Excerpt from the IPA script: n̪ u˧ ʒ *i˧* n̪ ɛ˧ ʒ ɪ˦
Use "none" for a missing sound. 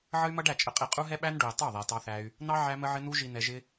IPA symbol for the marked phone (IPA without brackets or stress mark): i˧